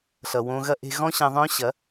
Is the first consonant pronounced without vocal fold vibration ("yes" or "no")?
yes